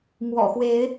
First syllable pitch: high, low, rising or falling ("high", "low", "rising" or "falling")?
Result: low